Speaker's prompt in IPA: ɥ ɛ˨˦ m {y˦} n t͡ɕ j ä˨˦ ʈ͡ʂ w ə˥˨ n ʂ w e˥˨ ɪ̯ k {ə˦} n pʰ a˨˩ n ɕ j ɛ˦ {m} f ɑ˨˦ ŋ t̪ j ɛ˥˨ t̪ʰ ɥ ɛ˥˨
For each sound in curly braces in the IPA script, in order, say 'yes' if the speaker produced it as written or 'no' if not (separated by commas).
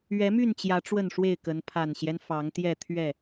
no, no, no